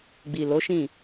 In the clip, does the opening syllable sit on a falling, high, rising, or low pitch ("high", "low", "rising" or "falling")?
low